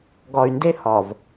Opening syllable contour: low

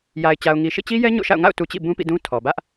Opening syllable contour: low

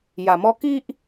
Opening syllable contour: low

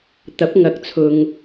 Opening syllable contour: rising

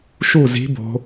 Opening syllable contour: falling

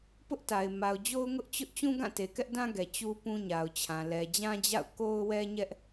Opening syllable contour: high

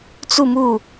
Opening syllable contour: falling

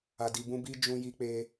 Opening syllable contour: low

